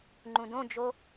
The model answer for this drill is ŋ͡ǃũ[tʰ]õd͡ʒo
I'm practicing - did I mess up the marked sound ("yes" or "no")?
yes